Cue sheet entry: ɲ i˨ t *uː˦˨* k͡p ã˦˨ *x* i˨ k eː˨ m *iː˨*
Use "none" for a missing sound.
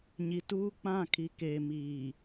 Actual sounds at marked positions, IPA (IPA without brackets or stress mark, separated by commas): uː˦, kʰ, iː˨